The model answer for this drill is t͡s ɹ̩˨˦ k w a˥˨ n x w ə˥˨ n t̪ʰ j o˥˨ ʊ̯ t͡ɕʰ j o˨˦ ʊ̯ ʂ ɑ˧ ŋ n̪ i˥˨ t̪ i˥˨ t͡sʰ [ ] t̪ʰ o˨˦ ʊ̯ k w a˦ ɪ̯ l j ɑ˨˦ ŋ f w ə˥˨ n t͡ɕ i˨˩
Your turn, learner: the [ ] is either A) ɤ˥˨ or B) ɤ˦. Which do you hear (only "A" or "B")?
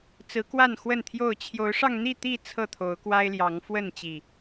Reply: A